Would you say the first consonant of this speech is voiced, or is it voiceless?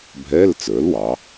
voiced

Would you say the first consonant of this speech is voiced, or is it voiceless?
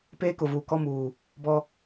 voiceless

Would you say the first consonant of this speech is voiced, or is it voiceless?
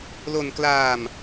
voiced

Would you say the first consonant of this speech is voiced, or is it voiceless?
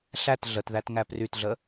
voiceless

